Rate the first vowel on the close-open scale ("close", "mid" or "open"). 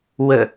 mid